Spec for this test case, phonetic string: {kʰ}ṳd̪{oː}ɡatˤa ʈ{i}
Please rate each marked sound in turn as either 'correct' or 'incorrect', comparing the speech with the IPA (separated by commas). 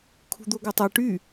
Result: correct, incorrect, incorrect